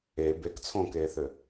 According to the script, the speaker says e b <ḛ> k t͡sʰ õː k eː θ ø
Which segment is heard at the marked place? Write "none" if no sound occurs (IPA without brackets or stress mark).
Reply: e